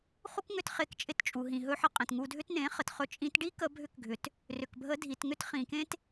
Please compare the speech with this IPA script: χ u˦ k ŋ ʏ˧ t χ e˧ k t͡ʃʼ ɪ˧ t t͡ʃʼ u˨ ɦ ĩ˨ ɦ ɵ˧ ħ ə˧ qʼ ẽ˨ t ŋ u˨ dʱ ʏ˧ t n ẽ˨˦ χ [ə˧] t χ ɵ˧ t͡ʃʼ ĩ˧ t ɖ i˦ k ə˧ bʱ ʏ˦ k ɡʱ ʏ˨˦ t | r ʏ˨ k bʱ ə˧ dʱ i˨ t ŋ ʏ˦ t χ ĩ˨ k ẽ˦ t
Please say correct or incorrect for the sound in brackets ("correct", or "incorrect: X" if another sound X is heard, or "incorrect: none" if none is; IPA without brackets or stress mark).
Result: incorrect: ə˨